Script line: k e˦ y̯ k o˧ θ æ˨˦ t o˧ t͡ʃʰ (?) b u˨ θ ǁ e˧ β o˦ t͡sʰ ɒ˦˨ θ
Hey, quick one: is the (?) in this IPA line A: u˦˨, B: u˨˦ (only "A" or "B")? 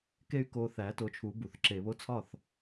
B